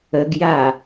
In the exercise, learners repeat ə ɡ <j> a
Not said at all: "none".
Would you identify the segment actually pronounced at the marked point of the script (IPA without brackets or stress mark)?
j